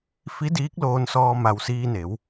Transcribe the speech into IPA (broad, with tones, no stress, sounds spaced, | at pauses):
f i˧˥ d iː˧˥ k̚ l oː˧ n s ɔː˧ m a˧ w s iː˧ n e˩˧ w